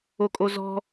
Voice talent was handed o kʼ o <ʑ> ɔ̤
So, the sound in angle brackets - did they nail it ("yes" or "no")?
no